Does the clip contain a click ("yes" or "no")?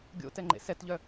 yes